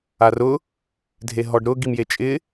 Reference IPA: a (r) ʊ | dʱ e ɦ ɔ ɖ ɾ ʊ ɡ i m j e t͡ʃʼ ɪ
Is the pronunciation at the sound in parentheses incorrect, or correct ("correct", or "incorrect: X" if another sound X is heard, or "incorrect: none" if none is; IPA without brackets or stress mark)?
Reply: correct